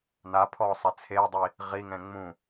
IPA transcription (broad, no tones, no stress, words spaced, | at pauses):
napʰɔːsˤɛ t͡sʰeːdˤi | ʁiŋɛ̃ ŋ͡mũ